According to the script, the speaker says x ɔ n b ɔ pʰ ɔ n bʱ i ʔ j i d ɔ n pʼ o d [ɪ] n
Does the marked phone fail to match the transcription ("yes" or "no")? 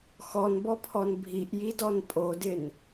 no